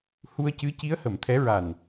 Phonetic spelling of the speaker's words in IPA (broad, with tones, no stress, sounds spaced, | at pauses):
h u˧ ə̯ c ɨ˧˥ c i˧˥ ə̯ h ə˨˩˨ m t̪ʰ ɛ˧˥ ɹ a˨˩ n